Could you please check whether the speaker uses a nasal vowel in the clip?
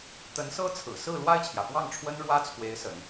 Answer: no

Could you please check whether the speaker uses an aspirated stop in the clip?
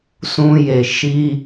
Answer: no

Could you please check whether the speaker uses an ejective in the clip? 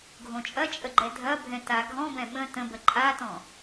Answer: yes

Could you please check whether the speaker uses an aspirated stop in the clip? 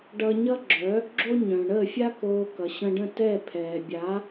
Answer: yes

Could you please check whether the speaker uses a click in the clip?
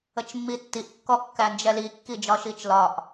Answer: no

